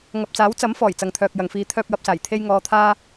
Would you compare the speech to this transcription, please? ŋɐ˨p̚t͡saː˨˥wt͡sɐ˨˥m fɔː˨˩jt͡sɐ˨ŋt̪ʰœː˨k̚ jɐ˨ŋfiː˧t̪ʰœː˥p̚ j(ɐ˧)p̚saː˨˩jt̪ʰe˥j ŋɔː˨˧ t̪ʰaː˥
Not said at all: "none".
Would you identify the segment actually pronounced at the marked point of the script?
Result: ɐ˧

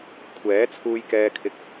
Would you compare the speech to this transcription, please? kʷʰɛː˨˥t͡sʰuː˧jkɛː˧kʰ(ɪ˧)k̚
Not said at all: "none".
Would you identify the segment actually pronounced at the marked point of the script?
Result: ɪ˧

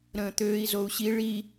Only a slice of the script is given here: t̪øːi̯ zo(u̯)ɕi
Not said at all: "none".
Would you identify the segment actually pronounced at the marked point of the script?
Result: u̯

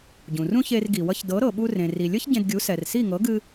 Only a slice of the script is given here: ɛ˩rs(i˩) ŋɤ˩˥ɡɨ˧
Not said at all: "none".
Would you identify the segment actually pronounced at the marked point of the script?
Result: i˥˩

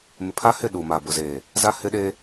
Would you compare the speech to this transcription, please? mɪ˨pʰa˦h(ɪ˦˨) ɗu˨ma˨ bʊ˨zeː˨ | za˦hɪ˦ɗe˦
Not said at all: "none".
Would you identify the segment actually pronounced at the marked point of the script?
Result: ɪ˦˨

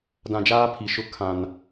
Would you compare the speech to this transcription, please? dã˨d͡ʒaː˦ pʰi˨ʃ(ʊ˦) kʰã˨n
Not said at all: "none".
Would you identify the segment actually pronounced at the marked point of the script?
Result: ʊ˦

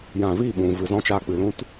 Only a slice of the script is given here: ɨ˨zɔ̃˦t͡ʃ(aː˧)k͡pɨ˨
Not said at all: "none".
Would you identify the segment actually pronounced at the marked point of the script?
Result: aː˧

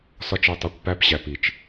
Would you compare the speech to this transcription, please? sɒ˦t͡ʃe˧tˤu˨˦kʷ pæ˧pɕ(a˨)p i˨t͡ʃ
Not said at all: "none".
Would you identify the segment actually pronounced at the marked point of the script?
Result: æ˨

